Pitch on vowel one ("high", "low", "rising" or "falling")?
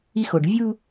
high